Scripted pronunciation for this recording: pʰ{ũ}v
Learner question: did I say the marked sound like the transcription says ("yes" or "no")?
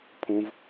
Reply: yes